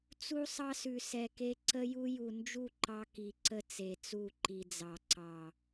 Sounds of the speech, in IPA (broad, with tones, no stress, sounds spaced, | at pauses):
t͡s u˦ sˤ ɑ˦ s ʉ˨ s ɛ˨ k e˦ ǀ ə˦ j u˦ j u˨ n d͡ʒ u˦˨ ǃ ɑ˦ k i˨ ǀ ə˦ t͡s e˨ t͡s u˦˨ ǃ i˨ d͡z ɑ˨ ǀ ɑ˨